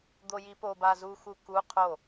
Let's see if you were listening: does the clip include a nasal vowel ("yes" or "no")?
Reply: no